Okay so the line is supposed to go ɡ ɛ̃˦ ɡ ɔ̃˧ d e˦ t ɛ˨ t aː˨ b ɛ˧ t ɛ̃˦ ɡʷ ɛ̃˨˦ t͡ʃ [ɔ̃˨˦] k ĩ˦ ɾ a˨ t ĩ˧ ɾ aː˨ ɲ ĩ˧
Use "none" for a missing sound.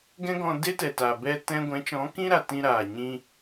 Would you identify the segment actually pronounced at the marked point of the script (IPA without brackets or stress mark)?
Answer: ɔ̃˨˦